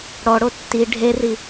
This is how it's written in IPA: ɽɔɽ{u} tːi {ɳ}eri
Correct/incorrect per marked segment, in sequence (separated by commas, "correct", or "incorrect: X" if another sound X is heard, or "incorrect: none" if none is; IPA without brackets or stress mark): incorrect: o, incorrect: ɖʱ